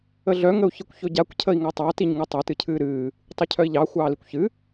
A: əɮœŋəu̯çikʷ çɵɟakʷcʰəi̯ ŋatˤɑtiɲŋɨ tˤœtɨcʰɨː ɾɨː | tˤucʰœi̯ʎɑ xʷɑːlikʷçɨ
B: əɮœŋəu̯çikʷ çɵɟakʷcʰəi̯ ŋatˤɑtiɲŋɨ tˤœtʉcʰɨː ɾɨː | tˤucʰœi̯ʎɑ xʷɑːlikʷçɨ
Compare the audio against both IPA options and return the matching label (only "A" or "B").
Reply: A